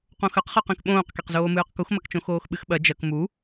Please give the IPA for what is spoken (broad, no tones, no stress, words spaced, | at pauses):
qõxɐqχɨqẽk ɓõːqkeqzoːmɨːq kuxmɐkt͡ʃõ xoːxɓɨxɓɐ d͡ʒɐk mu